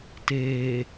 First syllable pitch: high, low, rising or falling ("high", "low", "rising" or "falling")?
low